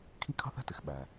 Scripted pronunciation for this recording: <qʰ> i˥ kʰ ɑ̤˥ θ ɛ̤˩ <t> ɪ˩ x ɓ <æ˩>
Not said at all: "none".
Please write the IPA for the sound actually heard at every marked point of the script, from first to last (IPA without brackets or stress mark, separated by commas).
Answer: kʰ, t, æ˩